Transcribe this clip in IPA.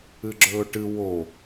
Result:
ɨ ɡ͡ǁ ɵː ʈ ɨ w o

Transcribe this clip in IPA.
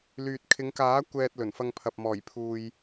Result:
l yː˨ t̚ kʰ ɪ˨˧ ŋ k aː˨˥ kʷ ɛː˨ t̚ l ɵ˨˩ n f ɐ˧ ŋ pʰ ɐ˨ p̚ m ɔː˨˩ j pʰ uː˨ j

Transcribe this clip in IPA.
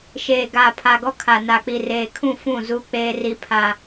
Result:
ʃ eː˨ ɡ a˨ pʰ a˨ ɡ ɔ˦ kʰ a˨ n a˨ k͡p i˨ r eː˨ kʰ ũ˦˨ f ũ˦˨ z u˦ k͡p eː˦ r i˦ pʰ a˦

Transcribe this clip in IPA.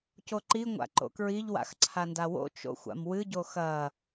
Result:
c o ǃ i ŋʷ a̰ ǃ o̰ k ɹ i ʎ w a̰ x ǀʰ a n d a w o̰ t͡ʃ o̰ xʷ a̰ m w ɨ ɟ o x ɐ

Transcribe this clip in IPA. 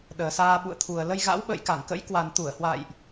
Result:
ɗ əː˨˩ s aː˧ ɓ ṵ˧˨ ə̯ t̪ʰ u˨˩ ə̯ l ə˧ j ɣ a̰˧˥ w ɓ ə̰ː˧˨ j k a˧˩ ŋ k ə̰˧˥ j k w a˨˩ n t̪ u˧˩ ə̯ h w a̰ː˧˨ j ʔ

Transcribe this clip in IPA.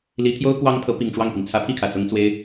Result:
l i˧˥ t̪ʰ j o˥ ʊ̯ k w ɑ˥ ŋ pʰ ɤ˧˥ p i˨˩ ŋ ʈ͡ʂ w ɑ˥˩ ŋ p i˩ ŋ t͡sʰ ä˧˥ pʰ i˥˩ kʰ ä˨˩ s ʊ˥ ŋ t͡s w e˥ ɪ̯

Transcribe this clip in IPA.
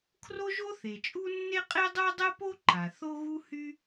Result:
kʰ r o˥ ʒ o˥ θ e˩ t͡ʃʼ u˥ nː e˥ qʼ e˥ dˤ o˥ dˤ ɛ˥ p o˥ ǃ a˩ θ o˥ ɣ u˥ h y˥

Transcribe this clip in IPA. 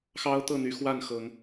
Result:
x ɑ˦ ʊ̯ t̪ ɤ˥˨ n̪ y˨˦ x w a˥˨ n x ɤ˨˦ ŋ

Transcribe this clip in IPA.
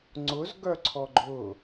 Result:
ŋ͡ǀ ʊ z ɡ œ ǀʰ ɔ ɡ͡ǃ ʊ

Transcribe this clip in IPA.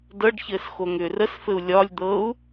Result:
d ɤ ɖ ç ɘː s x o ŋ ʏː r ə s f ɘ u̯ lʲ ɒ lʲ d̪ ɤ u̯

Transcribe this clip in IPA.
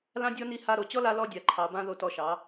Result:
l ã˦ dʲ ɔ˦ n i˧ h a˧ ɾ o˨ t͡ɕ ɔ˦ l a˧ l ɔ˧ dʲ a˨ ǃʰ ɑ˨ b ã˧ ð o˧ t ɔ˧ ʃ ɑ˨˦

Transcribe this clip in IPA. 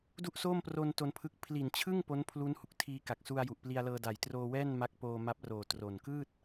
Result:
d u˥˩ ʔ s oː˥˩ m p r o˧ n t o˧ n pʰ ɯ˦˥ k̚ pʰ l i˨˩ n t͡ɕʰ ɯ˥˩ ŋ p o˦˥ n pʰ l u˦˥ n h u˨˩ k̚ tʰ iː˧ k a˨˩ k̚ s u˧ a̯ j u˨˩ ʔ p l i˧ a̯ l ɤː˧ d a˨˩ j t r oː˧ w ɛː˥˩ n m a˦˥ k̚ p oː˧ m a˦˥ p̚ r oː˨˩ t r o˨˩ n k ɯː˥˩ t̚

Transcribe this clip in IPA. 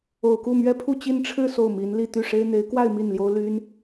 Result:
o˨˩ ʊ̯ k u˥˩ m ɥ ɛ˥ pʰ u˥˧ t͡ɕ i˥˧ n ʈ͡ʂʰ ɻ̩˥˧ s o˥˩ ʊ̯ m i˧˥ n l i˥˧ t̪ y˥˩ ʂ e˥ ɪ̯ n̪ e˧˥ ɪ̯ k w a˥˧ ɪ̯ m i˥˩ n l j o˥ ʊ̯ l y˥ n

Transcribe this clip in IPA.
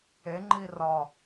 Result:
e ŋ͡ǃ i r ɒ

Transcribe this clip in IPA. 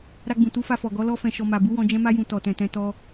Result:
ɾ a˧ ɡ͡b ũ˨ t u˨˦ f a˧ f ɔ˨ ɡ ɔ˨˦ l ɔ˧ f ɛ̃˨ ʃ ɔ˨ m a˨ b u˨˦ w ɔ̃˧ d͡ʒ ɛ̃˧ m a˧ j ũ˨ t ɔ˨ t ɛ̃˨ t ɛ̃˨˦ t ɔ˧

